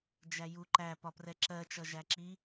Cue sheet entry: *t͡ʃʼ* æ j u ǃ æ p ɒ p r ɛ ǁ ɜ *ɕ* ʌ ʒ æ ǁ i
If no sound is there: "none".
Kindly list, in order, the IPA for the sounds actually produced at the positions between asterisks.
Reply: d͡ʒ, t͡ʃ

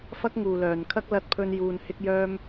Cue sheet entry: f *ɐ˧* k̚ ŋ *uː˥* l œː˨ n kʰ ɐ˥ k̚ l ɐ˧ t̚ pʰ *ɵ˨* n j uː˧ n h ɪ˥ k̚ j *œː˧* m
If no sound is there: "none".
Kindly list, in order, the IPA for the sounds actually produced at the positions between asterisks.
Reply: ɐ˥, uː˨, ɵ˧, œː˥

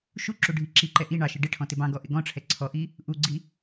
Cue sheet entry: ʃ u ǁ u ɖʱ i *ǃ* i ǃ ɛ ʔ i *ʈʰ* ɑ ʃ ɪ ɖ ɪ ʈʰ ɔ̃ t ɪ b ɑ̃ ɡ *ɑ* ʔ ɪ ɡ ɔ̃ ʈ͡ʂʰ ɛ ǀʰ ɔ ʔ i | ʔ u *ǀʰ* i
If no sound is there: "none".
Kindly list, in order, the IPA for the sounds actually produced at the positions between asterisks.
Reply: ǁ, ɳ, ɔ, ɡ͡ǀ

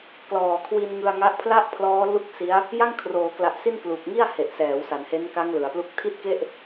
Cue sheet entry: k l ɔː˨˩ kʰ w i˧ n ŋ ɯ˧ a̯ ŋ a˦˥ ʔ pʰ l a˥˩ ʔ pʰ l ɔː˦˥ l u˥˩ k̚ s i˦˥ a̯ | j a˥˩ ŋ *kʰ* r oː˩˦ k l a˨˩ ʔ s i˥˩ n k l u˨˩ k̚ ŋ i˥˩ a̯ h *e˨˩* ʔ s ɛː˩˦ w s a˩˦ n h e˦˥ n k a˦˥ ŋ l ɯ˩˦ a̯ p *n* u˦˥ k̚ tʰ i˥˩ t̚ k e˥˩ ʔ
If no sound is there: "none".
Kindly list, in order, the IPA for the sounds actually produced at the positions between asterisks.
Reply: kʰ, e˨˩, l

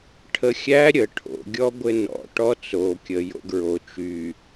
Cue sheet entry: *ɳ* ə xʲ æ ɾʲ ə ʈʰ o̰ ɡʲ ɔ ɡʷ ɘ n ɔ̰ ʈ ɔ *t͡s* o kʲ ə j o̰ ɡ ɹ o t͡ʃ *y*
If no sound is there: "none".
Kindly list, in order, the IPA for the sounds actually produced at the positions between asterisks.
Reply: ʈʰ, t͡s, y

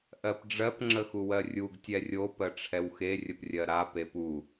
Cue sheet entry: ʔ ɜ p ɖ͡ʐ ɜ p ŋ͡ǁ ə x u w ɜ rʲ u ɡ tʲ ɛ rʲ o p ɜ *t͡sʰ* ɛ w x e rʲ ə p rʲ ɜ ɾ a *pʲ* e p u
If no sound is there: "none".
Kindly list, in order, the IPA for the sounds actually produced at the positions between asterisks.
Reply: ʈ͡ʂʰ, p

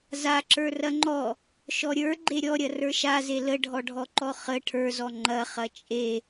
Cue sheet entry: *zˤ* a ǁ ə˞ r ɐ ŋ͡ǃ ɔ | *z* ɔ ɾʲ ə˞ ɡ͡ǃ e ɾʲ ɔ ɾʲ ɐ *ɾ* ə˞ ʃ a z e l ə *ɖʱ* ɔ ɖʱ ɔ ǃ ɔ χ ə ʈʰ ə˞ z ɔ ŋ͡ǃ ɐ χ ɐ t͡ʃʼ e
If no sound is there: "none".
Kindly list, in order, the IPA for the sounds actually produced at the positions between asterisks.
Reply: z, ʃ, r, ɖʱ

